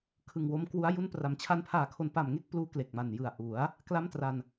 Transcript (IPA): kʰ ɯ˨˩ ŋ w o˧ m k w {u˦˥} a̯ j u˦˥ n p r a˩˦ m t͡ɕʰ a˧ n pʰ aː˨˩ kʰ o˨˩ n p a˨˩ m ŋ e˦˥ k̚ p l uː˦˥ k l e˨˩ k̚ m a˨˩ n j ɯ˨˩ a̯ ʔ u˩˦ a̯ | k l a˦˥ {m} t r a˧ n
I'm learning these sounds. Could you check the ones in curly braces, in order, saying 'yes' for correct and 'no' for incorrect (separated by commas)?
yes, yes